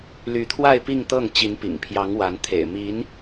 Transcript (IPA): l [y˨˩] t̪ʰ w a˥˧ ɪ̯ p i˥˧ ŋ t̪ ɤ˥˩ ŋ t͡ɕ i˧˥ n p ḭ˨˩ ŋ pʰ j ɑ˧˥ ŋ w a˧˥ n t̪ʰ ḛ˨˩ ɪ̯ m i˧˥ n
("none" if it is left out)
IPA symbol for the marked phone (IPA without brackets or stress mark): y˧˥